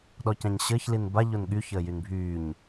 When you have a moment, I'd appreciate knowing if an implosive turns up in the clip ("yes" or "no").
yes